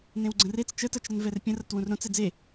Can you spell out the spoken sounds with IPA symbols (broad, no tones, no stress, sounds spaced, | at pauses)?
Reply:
n ẽ w ɡ͡ǀ ə̃ r e t͡s t͡ʃ ə t ʌ t͡ʃ ɾ ə n v ɛ r pʲ ə̃ r ʌ t w ũ r ɾ õ t͡s ɛ d͡z e